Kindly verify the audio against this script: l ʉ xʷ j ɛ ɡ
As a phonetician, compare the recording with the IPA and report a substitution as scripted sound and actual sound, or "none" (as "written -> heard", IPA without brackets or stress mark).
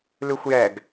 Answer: none